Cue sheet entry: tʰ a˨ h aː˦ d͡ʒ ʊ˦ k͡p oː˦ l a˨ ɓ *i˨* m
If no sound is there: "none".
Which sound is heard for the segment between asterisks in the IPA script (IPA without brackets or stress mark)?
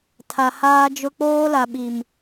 i˨